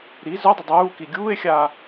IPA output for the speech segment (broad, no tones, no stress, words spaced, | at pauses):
ɾi zœdˤʏ dˤuːki ɡʲuːe̯xʲaː